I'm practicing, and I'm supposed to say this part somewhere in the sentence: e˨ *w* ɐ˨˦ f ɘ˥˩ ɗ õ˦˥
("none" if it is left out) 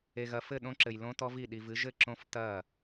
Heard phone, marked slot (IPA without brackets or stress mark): ɣ